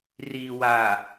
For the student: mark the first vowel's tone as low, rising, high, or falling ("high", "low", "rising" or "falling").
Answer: low